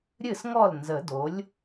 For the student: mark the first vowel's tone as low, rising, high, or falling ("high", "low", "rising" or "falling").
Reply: falling